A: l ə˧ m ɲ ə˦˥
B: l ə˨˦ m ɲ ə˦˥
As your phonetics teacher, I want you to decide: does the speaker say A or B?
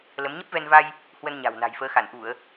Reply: B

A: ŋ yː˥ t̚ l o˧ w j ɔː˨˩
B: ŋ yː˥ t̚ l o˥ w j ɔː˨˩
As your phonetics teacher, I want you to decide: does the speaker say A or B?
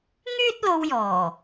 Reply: A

